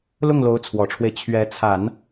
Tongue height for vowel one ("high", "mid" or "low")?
high